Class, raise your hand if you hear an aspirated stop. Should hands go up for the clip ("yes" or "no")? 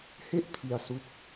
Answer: yes